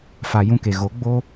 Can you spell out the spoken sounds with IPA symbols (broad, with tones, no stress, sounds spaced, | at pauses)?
f a˨ j ũ˧ k e˨ ɣ o˨˦ ɡ͡b o˧